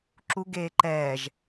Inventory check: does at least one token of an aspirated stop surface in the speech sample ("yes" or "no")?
no